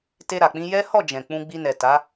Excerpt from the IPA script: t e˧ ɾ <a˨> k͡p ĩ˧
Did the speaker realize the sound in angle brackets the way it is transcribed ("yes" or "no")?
yes